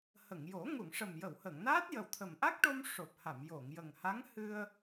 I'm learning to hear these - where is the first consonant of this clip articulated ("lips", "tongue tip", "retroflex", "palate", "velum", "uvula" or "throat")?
throat